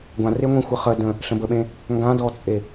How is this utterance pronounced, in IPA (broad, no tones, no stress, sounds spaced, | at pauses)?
ɡʷ ã r e ŋʷ ẽ xʷ ə χ ə d ə̃ | ɬ ə̃ b ə ɓ ẽ | ŋ ɡ ã d ɔ t͡sʼ e